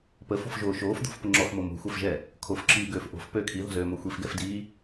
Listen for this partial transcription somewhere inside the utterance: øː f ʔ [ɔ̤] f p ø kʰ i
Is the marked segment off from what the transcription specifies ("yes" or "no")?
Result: yes